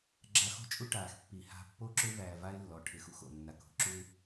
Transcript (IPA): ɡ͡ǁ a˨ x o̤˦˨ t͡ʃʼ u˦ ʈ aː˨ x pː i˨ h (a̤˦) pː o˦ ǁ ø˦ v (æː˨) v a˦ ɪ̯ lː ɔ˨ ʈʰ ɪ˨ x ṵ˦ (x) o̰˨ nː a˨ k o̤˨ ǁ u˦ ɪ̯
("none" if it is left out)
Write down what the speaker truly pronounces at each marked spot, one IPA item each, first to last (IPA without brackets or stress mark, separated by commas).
a̤˦, æː˨, x